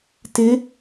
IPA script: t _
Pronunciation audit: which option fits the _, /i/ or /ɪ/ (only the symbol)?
ɪ